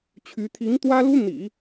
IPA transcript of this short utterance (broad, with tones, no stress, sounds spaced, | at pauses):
t͡ɕʰ y˧˥ t̪ʰ i˧˥ ŋ t̪ w ä˥ l u˥ n̪ ḭ˨˩˦